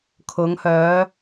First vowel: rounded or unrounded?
rounded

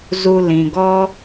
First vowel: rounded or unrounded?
rounded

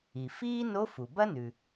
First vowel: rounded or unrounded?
unrounded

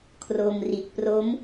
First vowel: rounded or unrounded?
rounded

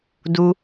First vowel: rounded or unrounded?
rounded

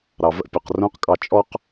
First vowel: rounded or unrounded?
unrounded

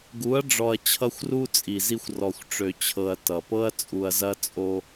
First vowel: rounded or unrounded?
rounded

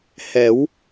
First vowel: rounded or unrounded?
unrounded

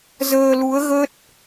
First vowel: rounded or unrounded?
unrounded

